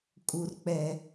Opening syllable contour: low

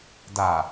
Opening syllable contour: low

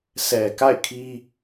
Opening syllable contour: low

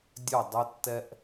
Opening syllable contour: falling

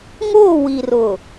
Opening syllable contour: falling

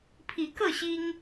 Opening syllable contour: rising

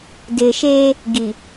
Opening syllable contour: low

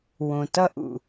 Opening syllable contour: low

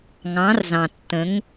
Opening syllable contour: rising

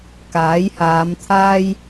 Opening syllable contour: rising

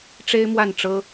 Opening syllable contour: high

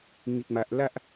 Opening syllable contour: low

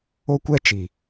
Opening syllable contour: high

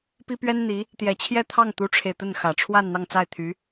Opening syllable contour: high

